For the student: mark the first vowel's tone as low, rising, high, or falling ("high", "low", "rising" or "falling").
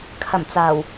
low